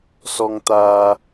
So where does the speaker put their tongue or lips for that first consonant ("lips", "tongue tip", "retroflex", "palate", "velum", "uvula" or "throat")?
tongue tip